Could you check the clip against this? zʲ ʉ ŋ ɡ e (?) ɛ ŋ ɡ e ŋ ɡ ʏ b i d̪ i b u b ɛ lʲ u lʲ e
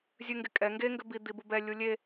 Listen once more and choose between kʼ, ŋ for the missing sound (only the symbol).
kʼ